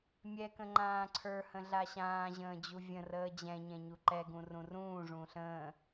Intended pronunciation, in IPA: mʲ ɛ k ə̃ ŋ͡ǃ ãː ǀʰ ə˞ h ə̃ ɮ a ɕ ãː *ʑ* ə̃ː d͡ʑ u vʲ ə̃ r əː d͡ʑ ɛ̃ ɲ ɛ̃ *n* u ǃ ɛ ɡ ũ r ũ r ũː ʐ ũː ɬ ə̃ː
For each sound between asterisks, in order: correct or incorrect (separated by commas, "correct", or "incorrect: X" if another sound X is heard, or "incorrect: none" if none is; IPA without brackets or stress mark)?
correct, incorrect: ɲ